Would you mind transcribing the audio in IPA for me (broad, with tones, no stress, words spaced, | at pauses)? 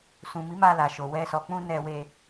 sũ˨mi˨˦ ma˧la˨ʃo˨ wɛ˧ sɔ˨k͡pũ˧ nɛ˧ we˧